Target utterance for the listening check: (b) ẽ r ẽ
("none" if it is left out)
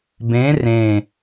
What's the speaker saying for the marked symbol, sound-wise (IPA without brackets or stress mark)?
b